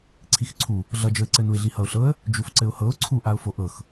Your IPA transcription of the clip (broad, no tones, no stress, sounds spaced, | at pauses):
ǀʰ i x ǀʰ u | ɮ ʌ d͡ʒ ɤ ɪ̯ ǀ ɘ n u ɪ̯ ɮ i h ʌ ʊ̯ ɬ ɤ ə̯ | d͡ʒ u f ǀ ɘ ʊ̯ h ɤ ʊ̯ ǀʰ u ʔ a ʊ̯ f o ʔ ɤ x